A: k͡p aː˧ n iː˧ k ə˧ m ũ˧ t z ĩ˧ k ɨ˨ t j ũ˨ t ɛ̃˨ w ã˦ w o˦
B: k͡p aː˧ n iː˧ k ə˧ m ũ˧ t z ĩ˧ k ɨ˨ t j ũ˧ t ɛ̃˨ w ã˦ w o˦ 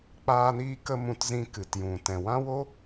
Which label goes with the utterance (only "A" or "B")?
A